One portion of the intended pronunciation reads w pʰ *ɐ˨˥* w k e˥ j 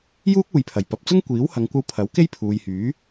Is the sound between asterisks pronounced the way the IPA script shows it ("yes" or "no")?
yes